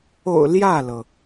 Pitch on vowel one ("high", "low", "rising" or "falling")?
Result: low